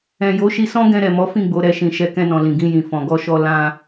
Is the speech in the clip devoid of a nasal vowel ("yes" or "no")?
no